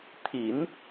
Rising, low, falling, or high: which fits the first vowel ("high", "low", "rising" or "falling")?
low